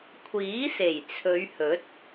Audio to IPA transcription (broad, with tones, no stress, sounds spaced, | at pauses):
kʷʰ iː˨˥ s e˨˩ j t͡sʰ ɵ˨˧ ɥ h ɵ˨˥ t̚